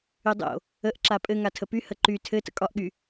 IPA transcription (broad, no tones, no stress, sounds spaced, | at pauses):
y dˤ o̰ | ə ʔ ǁ a pʼ ɘ ŋ a tʰ ə p y h ə ǃ y tʰ ɘ t ə̰ kʼ ɒ ʔ ɠ y